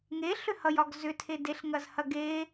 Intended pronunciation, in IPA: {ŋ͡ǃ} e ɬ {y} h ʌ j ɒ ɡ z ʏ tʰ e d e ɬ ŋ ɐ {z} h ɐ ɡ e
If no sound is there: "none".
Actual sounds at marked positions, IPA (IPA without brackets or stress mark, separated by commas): ŋ, ʏ, z